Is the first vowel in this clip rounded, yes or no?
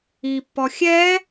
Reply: no